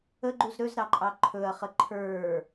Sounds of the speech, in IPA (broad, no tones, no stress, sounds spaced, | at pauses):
ə ɡ͡ǃ u z ɾ ɵ z ɾ ɑ ǃʼ ɑ ǃʰ ɵ ɐ̯ χ ə ǃʰ ə˞